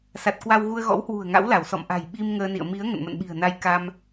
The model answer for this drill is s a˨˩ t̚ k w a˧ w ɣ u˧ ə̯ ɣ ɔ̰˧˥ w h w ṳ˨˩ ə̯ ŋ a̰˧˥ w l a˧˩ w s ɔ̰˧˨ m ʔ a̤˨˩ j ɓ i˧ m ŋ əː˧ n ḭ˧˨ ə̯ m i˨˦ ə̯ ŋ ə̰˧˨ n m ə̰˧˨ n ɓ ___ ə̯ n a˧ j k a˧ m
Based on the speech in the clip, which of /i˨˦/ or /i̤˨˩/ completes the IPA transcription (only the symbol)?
i̤˨˩